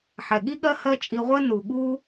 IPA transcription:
ħɛ˨ɠi˦ɠɜ˦ hɜ˦t͡ʃʼi˧ʁʷɜ˦ nu˨ɠu˦

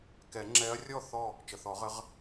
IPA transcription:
kɛ˨˩˦ŋ͡ǁɛ˧˥ɐ̯ rʲɔ˥˨ θɔ˥˨ | t͡ʃə˩˧˩θɔ˨˩˦ʁə˩˥ʁ

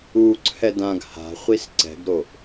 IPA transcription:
uǀʰɛ dãɡ ha̤χʷis ǀɛ̤ɡɾoʔ

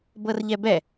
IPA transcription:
bɤrʎɛbɛ

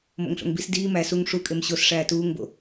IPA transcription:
mo̰ŋɬo̰ŋbis diː mæ suŋ ʂu kʼemɕos ʂæːtuːŋbo̰

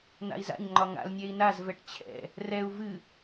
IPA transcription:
n̪a̰i̯za̰ɲŋ͡ǃɒ ŋa̰lnʲɛi̯ nazvɛʈ t͡ɕʰɛ̰ | rɛu̯ vɨ

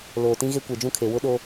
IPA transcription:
loː˨tĩ˦ɣe˦ kʷe˨d͡ʒũ˦˨kʰe˨ wʊ˦ɗo˦

